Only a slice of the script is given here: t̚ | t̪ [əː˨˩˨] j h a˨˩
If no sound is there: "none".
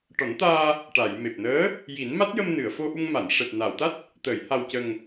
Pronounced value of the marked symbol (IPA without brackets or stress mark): əː˨˩˨